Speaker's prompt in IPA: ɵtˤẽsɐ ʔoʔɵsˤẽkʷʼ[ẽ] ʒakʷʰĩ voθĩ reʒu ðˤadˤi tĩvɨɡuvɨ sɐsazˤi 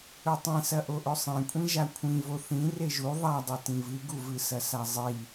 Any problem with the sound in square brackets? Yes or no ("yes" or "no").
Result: yes